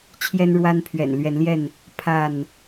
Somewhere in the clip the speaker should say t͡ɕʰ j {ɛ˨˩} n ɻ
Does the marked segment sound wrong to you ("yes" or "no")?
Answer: yes